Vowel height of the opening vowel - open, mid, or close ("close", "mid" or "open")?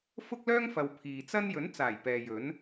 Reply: close